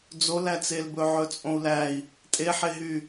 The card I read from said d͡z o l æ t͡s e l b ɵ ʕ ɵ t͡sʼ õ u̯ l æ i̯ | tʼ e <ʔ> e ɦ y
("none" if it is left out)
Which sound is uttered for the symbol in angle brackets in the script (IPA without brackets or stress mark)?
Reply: ħ